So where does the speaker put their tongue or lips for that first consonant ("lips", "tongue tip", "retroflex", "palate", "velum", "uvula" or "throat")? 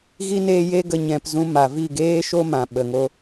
velum